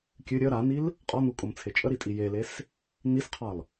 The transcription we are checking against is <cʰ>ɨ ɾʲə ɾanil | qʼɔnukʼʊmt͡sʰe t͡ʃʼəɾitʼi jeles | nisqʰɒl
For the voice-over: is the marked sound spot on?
no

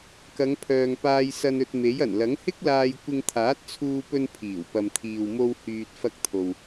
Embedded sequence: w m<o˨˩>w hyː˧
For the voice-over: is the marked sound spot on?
no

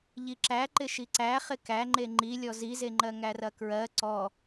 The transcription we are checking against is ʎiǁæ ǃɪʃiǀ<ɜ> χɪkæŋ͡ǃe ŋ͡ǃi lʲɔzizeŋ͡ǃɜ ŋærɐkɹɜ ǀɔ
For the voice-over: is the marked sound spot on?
no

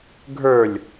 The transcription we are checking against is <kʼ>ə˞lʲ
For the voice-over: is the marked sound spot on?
no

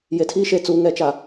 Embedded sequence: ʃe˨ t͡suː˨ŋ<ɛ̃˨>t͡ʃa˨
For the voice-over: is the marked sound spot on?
no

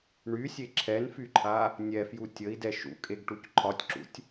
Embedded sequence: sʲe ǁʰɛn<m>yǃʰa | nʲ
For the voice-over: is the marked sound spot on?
no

